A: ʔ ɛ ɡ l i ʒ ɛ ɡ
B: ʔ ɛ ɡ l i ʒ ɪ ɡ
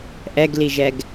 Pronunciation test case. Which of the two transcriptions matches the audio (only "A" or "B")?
A